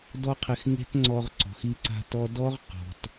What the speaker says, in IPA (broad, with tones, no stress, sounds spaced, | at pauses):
d ɔ˦ qʰ ɪ˧ x ŋ e̤˦ t ŋ͡ǀ ɔ˧ ʁ ǀ ɔ̤˨ x i˧ ǀ a̤˧ t ɔ˧ d ɔ˦ ʁ q ɔ̤˨ t